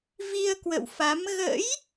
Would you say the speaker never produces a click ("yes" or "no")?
yes